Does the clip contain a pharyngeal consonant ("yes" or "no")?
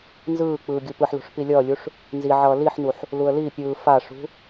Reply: yes